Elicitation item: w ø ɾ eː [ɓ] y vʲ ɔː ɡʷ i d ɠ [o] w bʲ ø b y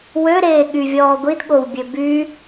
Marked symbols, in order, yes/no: no, yes

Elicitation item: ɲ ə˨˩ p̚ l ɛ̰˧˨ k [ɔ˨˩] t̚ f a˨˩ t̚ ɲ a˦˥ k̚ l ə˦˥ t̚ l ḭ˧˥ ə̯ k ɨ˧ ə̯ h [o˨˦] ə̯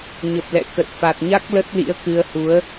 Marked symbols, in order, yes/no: no, no

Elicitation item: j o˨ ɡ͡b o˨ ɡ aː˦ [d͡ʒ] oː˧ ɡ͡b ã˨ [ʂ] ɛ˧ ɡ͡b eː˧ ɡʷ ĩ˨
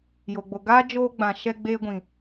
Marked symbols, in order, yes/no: yes, no

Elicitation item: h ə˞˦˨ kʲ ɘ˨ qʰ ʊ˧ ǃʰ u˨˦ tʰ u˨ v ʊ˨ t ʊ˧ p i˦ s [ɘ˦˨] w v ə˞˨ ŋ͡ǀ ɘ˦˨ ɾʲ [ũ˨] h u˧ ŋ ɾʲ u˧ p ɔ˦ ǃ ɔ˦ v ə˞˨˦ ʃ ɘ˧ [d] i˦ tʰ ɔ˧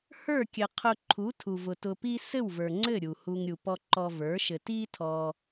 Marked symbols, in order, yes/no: yes, no, no

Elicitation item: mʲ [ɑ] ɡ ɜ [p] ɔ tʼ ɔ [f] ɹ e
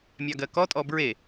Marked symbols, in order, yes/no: yes, no, no

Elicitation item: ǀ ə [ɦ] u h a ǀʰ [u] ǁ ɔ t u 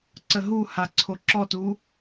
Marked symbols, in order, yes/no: yes, no

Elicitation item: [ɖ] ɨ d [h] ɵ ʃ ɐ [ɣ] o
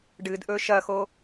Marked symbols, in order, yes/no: yes, no, no

